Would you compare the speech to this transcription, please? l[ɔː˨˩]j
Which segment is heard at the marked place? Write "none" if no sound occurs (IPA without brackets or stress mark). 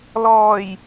ɔː˨˩